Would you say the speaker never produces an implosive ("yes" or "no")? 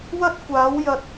yes